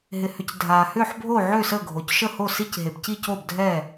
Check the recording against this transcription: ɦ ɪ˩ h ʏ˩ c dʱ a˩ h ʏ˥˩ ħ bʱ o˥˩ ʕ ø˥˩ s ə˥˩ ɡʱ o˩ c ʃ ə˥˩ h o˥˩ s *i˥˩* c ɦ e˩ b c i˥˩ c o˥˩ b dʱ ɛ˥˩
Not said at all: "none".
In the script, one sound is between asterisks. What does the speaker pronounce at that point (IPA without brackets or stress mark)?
i˥˩